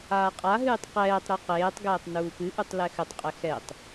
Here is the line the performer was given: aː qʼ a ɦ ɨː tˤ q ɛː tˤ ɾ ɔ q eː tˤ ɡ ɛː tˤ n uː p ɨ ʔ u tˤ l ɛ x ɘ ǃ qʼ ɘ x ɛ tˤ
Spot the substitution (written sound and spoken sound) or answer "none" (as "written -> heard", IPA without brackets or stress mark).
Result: ǃ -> tˤ